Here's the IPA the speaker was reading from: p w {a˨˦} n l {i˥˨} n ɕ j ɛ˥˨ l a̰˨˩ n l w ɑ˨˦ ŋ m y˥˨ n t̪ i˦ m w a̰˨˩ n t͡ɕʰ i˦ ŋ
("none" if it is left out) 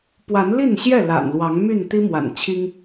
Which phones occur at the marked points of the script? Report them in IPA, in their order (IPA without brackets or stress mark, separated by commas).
a˨˦, i˥˨